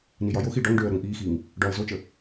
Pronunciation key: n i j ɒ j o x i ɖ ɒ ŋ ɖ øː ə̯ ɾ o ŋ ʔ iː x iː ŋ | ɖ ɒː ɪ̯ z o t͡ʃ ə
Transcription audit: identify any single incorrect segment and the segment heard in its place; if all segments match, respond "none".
none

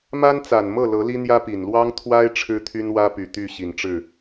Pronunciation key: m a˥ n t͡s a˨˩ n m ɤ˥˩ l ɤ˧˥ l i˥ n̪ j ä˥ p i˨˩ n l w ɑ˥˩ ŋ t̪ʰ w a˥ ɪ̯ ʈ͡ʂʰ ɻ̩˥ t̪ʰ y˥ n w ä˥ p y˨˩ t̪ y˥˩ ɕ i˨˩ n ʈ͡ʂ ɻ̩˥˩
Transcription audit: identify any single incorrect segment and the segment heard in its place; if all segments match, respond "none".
ɑ˥˩ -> ɑ˥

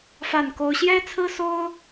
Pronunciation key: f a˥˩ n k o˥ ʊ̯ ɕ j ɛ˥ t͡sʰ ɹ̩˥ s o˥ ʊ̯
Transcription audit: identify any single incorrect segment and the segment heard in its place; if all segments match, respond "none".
none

